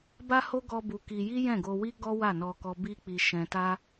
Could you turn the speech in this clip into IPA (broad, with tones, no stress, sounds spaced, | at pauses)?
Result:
b a˦ h o˦ ɡ ɔ˦ b u˧ k i˧ j i˦ j ɛ̃˦˨ ɡ o˧ w i˦ ɡ ɔ˦ w a˦˨ n ɔ˧ k ɔ˧ b i˧ k͡p i˧ ʃ ɛ̃˧ t a˦